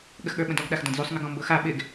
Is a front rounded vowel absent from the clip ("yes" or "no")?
yes